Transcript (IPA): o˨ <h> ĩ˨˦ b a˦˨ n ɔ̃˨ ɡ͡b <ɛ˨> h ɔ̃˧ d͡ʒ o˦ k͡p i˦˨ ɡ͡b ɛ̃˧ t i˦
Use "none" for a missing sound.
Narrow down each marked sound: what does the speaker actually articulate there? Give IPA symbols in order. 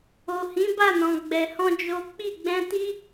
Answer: h, ɛ˨

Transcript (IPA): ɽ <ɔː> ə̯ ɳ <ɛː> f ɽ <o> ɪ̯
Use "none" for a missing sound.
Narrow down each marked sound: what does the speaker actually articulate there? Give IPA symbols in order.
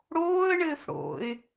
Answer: oː, ɘː, o̰

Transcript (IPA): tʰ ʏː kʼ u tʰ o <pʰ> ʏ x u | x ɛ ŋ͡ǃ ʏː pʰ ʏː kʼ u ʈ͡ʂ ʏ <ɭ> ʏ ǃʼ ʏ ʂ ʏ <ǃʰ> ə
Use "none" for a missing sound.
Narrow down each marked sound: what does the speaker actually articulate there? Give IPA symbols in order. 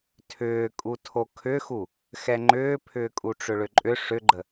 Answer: kʰ, ɭ, ɡ͡ǃ

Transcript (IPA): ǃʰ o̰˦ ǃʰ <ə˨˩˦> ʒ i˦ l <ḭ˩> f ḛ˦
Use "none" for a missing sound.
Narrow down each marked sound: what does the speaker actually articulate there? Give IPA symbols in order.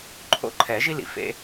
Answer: ɛ˨˩˦, ḭ˩

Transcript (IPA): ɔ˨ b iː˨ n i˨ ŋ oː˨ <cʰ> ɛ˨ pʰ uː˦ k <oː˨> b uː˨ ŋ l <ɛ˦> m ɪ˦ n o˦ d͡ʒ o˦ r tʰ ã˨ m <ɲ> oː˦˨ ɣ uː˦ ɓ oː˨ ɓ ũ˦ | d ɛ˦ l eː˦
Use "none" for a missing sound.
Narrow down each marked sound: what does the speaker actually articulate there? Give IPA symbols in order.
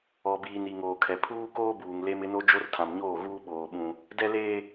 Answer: kʰ, oː˦, e˦, ɲ

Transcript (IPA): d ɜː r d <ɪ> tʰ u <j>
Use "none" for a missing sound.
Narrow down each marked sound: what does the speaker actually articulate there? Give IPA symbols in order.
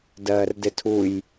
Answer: ɪ, j

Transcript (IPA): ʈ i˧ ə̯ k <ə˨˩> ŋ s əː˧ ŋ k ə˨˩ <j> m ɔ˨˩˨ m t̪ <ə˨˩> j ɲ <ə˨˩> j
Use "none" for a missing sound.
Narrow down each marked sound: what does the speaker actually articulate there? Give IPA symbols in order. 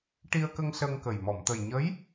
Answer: ə˧, j, ə˨˩, ə˧˥

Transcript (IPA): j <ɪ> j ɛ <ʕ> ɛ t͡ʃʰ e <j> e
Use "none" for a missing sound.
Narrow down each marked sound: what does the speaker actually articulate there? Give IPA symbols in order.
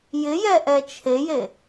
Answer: ɪ, ʔ, j

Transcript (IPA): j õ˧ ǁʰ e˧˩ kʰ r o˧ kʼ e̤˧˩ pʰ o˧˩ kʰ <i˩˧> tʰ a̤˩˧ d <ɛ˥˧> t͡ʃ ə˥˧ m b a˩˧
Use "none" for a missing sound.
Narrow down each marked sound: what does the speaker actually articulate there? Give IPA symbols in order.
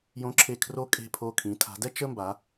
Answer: ĩ˩˧, ɛ˥˧

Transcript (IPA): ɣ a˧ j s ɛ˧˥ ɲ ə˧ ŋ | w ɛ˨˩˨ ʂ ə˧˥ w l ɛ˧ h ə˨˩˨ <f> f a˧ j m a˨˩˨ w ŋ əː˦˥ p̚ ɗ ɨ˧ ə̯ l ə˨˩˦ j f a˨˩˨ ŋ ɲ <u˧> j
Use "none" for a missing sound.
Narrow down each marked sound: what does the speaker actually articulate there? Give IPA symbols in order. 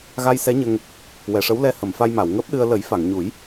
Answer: m, u˨˩˦

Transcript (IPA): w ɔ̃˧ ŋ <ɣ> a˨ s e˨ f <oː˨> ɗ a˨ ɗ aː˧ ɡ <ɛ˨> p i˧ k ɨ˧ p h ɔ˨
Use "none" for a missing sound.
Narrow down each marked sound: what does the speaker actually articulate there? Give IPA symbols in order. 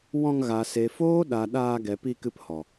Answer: ɣ, oː˦, ɛ˨

